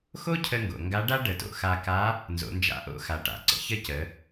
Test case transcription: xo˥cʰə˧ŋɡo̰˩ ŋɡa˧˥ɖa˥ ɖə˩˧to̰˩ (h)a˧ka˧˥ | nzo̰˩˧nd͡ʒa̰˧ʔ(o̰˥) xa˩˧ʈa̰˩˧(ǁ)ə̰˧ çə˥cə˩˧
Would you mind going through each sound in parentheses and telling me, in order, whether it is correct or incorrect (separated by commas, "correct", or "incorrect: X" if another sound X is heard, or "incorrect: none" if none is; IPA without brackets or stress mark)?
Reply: incorrect: x, correct, incorrect: ǀ